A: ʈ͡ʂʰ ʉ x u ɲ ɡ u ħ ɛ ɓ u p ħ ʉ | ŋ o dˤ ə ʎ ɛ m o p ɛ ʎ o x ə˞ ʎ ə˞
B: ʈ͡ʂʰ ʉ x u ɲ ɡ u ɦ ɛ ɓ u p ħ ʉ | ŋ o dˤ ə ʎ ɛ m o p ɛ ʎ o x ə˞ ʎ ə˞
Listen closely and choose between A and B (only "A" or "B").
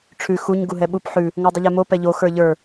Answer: B